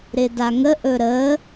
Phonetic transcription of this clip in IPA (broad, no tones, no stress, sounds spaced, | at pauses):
ɾ ɪ d a ŋ ə ʔ ɵ ɾ ə